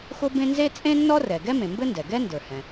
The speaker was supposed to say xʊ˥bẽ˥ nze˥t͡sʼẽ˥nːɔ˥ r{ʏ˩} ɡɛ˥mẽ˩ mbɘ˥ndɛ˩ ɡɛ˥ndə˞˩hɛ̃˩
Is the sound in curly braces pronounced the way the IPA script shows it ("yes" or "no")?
no